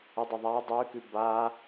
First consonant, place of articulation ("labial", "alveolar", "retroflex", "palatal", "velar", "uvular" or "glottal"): alveolar